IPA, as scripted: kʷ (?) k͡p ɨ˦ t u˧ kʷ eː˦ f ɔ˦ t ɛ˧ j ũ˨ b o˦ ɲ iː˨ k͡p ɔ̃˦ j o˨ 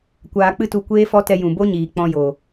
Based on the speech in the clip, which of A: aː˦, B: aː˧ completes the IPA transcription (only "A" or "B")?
B